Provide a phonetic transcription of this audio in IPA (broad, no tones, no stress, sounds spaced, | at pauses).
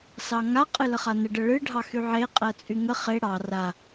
s ɑ ŋ a qʼ ɨ l ə χ a n ə ɖ ə ɭ ɨ ɖʱ ɑ x y ʕ e qʼ ɜ t͡sʼ y ŋ ə χ e ɽ ɑ r a